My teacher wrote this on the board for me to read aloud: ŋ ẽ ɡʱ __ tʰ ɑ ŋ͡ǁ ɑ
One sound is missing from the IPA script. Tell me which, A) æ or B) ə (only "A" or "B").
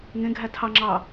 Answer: A